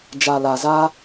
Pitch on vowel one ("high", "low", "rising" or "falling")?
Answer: low